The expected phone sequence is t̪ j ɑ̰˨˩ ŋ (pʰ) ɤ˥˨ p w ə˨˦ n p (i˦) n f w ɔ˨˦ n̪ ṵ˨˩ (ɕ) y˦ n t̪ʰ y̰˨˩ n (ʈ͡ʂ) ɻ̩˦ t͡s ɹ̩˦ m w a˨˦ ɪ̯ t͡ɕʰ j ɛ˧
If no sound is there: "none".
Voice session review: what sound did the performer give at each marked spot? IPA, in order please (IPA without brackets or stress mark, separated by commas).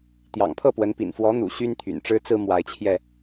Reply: pʰ, ḭ˨˩, ɕ, ʈ͡ʂ